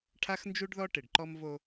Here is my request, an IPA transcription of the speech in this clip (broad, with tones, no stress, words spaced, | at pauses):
ʈʰa˦xnd͡ʒu˦ɖðɔ˦ ʈɪ˨ɖǃɔ˦mvo˦